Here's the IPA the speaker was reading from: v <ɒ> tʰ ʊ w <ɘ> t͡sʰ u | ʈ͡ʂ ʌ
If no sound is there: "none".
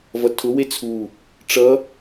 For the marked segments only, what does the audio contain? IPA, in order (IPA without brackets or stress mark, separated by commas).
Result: ʌ, e